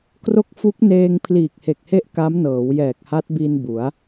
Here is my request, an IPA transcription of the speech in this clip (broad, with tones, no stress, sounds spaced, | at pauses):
k r o˦˥ k̚ f u˦˥ k̚ n eː˧ ŋ pʰ l iː˨˩ k̚ h e˨˩ k̚ h e˦˥ ʔ k a˦˥ m n ɤː˩˦ w j ɛː˨˩ k̚ h a˦˥ t̚ b i˧ n b u˩˦ a̯